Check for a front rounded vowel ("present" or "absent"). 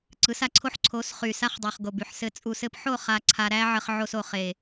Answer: present